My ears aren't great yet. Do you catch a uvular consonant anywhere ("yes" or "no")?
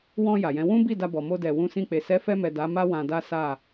no